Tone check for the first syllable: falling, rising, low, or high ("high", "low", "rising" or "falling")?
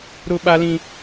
high